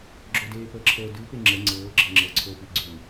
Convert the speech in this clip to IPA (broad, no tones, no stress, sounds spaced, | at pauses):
ɡ͡ǁ ɵ d eː p əː ǁʰ əː d ʉ p e ŋ͡ǁ ə ŋ͡ǀ ɤː ɡ͡ǁ ɤ ŋ͡ǁ ɤ ǀʰ ɵː p i ɡ͡ǀ ʉ